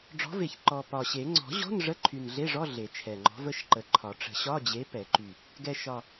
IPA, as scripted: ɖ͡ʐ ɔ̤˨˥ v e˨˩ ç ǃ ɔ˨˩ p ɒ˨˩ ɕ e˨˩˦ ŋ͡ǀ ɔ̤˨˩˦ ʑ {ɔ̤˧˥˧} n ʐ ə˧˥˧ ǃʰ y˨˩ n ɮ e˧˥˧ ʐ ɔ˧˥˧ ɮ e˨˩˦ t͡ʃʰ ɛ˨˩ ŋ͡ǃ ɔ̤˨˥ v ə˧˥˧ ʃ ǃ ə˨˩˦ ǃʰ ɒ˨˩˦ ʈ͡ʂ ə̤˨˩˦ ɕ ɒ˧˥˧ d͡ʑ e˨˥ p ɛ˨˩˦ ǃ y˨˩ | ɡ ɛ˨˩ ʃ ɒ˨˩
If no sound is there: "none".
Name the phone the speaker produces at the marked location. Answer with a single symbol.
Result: ɔ̤˧˥˧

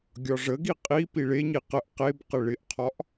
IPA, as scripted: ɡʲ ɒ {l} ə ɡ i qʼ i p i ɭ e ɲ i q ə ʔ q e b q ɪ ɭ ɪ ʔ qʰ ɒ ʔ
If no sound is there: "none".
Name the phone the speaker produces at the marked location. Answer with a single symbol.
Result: ʐ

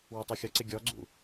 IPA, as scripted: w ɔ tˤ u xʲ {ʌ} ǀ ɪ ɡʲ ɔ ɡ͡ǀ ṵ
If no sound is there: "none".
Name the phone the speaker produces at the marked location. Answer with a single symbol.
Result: ʌ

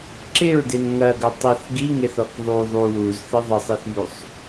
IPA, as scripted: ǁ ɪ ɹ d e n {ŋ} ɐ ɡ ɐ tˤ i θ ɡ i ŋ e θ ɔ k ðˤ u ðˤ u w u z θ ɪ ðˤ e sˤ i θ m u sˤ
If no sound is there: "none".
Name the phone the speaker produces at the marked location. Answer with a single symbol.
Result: ŋ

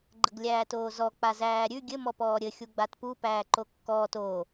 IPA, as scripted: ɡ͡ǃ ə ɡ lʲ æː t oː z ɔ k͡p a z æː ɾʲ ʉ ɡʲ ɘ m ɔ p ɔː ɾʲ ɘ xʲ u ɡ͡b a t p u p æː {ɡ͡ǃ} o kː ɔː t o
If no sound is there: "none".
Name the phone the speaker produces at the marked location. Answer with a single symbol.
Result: ǃ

